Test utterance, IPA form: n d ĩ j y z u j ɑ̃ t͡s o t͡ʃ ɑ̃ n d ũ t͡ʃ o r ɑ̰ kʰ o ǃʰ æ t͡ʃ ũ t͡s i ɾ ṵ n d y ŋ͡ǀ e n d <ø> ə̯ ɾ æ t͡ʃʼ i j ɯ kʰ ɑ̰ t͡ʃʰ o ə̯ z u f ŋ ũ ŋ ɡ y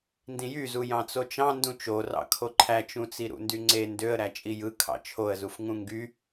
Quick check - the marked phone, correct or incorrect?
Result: correct